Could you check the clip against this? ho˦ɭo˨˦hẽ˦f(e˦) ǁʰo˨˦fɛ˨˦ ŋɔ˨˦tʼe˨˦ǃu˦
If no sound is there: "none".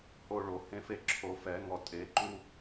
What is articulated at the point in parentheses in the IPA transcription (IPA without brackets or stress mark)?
e˦